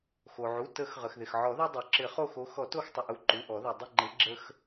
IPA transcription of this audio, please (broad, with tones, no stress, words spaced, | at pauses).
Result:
xo˩ʕu˩˧˩ tə˨˩˦x ʁə˩xðɪ˩xʕɔ˨˩˦ðo˦ dˤo˩ǁɪ˨˩˦χo˦˨xo˨˦ xɔ˨˩˦to˦˨xtˤə˩ʔu˩˧˩ ǃu˩˧˩ʔɔ˨˩˦ðu˩ dˤɪ˦˨ŋ͡ǃɪ˨˦ ɡ͡ǁə˦x